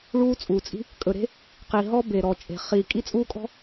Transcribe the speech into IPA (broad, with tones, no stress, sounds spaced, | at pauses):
ɭ uː˦ t͡sʼ uː˨ t͡sʼ i̤˦ | kʼ ɵ˨ ɾ e̤˦ | q i˨ ɦ ɔ˦ b e˨ ɾ ɔ˨ t͡ʃʼ e̤˨ χ i˨ kʼ i˦ t͡sʼ uː˦ kʼ ɔ̤˦